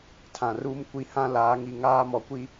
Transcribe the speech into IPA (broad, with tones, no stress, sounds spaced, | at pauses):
tʰ ã˨ r uː˦ m kʷ i˨ h ã˦ l aː˨˦ ŋ i˨ ŋ aː˦ m ɔ˨ kʷ i˦